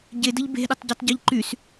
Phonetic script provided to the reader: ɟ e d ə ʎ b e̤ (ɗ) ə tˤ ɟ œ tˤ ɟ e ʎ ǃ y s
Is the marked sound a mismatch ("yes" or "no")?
no